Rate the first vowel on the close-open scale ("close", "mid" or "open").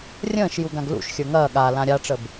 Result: mid